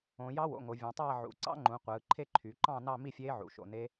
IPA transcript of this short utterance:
õ˩˧ j ɑ˦˥ w o̰˩˧ ŋ o˩˧ vʲ õ˩˧ tˤ æː˥˧ ʕ ṵ˩˧ ǀ ɑ̰˦˥ ŋ͡ǃ ũ˩˧ qʷ ɯː˩˧ ǃʰ e˥˧ ǃʰ y˩˧ ǃ ɑ̃˥˧ n ɑ˥˧ m i˥˧ fʲ eː˦˥ ʕ ṵ˩˧ ʃ o̰˩˧ n e˦˥

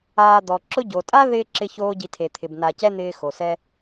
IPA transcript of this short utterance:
aː˨ d̪ ɔ˩ ǁ ʊ˥ ɟ o˩ tʼ a˦ ð ɪː˥ ǁ ɪ˦ ç oː˦ ɟ i˨ tʰ e˩ t̪ʰ ɪ˩ b n a˨ c ɛ˥ n̪ ɪː˦ x o˩ s ɛ˥

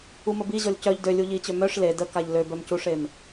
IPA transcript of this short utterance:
u m ə b i ʑ ɔ lʲ c œ ʎ d ø lʲ u ʎ i t͡ɕ ø m œ ʂ l e d ə k a ʎ l ø b œ m c u ʂ e m

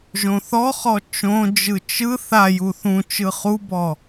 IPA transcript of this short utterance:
ʒ õ θ ɔ χ ɔ t͡ʃ õ d͡ʒ ɯ t͡ʃ ɯ θ a j u θ ũ t͡ʃ ɯ χ u b ɔ

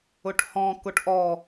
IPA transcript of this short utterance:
ʊ ʈ h ɔ̃ k ʊ ʈ ʔ ɔ

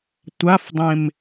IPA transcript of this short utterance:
tʷ a f dˤ ẽ m

